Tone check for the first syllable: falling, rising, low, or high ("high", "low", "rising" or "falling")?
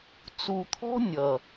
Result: low